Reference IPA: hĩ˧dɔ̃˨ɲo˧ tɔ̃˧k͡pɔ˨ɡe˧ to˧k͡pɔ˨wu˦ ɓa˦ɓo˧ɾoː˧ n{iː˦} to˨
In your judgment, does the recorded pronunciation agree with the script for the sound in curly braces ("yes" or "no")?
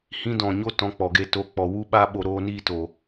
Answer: yes